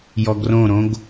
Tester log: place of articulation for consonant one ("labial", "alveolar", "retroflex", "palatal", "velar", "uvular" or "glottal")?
palatal